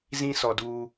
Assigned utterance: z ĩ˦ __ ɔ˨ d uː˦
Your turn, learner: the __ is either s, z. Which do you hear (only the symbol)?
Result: s